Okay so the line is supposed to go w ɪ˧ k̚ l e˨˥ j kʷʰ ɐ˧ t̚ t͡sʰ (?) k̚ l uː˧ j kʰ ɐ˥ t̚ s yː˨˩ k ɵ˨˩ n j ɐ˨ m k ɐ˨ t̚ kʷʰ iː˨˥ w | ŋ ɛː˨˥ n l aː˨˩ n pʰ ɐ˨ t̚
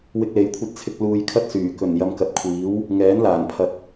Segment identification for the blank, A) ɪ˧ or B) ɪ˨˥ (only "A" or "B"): A